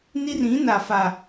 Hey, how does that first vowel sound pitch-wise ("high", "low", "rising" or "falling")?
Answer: high